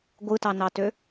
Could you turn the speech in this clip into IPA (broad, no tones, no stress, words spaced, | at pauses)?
ɡʷɯtɑnɑtø